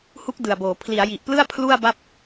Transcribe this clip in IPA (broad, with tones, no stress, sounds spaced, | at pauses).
h u˦˥ k̚ d ɯ˨˩ a̯ b oː˩˦ pʰ l i˩˦ a̯ j i˨˩ ʔ p l ɯ˥˩ a̯ pʰ l u˥˩ a̯ b a˥˩ p̚